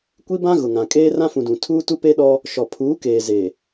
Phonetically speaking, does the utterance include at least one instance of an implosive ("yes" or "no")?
yes